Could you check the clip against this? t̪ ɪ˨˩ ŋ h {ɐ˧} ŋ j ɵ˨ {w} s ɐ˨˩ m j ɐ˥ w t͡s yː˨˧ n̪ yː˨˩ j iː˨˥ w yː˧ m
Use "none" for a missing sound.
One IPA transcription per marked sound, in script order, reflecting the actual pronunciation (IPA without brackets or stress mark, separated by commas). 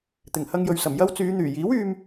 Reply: ɐ˧, ɥ